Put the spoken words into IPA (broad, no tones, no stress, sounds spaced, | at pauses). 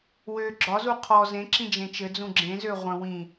w ø ɡ͡ǁ ɒ z u qʰ ɔ z ẽ ǁ ĩ d͡ʒ ẽ t͡ʃ ɘ d͡z ũ ɡ͡ǁ ẽ z ø ʁʷ ə̃ w ĩ